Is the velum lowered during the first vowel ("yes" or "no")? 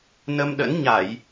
no